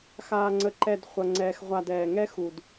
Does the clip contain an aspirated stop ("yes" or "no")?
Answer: no